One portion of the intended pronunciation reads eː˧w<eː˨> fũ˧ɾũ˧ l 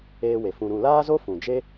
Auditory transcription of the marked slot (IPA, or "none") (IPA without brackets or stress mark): e˨